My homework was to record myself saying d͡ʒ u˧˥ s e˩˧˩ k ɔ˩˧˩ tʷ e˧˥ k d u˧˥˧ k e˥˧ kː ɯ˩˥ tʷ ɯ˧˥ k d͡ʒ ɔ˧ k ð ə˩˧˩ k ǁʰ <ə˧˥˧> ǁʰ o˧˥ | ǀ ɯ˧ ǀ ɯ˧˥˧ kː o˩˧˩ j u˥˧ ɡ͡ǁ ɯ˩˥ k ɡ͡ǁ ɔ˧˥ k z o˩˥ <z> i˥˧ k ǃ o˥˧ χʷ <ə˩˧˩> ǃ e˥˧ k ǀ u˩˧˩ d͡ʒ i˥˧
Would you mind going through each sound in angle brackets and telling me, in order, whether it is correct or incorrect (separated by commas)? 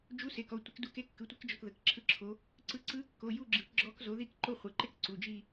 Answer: incorrect, incorrect, incorrect